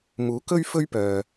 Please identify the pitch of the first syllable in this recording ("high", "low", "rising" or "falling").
rising